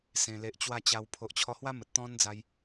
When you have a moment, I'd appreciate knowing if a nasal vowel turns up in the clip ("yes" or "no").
yes